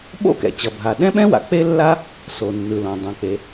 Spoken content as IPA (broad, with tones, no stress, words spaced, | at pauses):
ɓo̰˥kɛ̰˩t͡ɕʌ˩bʱa˩ ɗɛ̃˥ɓɛ̃˥wa̰˩ k͡pe˥lːa˥ | so˩nːɯ˩lõ˩ dˤẽ˩k͡pe˩